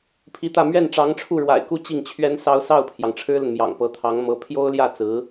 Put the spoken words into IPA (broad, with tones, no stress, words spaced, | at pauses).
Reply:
pʰi˧˥t̪ä˥˧ mɥɛ˥˩n ʈ͡ʂɑ˧˥ŋʈ͡ʂʰu˥˩ɻwa̰˨˩ɪ̯ku˥˧ t͡ɕi˥˩ŋt͡ɕʰɥɛ˥nsɑ˥ʊ̯ sɑ˥˩ʊ̯pʰjɑ˩ŋ ʈ͡ʂʰɻ̩˥lə˨nmjɑ̰˨˩ŋ pɤ˧˥t̪ʰɑ˧˥ŋmɤ˧˥ pʰjo˥ʊ̯ljä˥˩ t͡sɹ̩˧˥